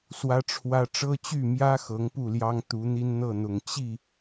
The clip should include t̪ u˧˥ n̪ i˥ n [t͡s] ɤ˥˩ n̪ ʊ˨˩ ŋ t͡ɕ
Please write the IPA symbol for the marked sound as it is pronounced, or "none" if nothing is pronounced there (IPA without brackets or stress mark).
n̪